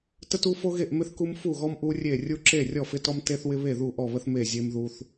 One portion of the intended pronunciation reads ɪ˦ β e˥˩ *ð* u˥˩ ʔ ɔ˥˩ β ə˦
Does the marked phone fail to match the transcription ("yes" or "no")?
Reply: no